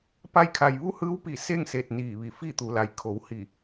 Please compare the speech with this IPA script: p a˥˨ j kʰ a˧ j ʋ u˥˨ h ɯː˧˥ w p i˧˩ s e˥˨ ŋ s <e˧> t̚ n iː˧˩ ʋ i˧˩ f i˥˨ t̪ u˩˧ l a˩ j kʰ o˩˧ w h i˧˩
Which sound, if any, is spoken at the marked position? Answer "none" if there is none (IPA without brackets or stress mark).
e˧˩